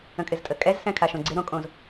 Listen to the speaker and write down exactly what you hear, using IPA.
ə̃ kʼ ɪ z tʼ ə kʼ ɛ z s ɛ̃ kʰ a ʃ õ ɡ͡ǀ ɪ ɾ õ kʼ õ z

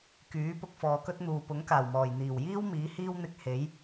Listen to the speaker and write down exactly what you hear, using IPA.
k yː˨˥ p ʊ˧ k̚ f ɔː˨ k ɵ˥ t̚ n̪ uː˨ p ʊ˨˥ ŋ k aː˨˩ w m ɔː˨˩ j n̪ iː˨˩ w j iː˥ w m iː˨˥ h iː˥ w n̪ ɪ˧ k̚ h e˨˥ j

